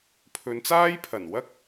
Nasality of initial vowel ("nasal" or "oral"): oral